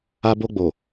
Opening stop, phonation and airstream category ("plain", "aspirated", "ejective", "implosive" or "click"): plain